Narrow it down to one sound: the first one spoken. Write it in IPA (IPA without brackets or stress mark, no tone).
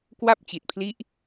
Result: k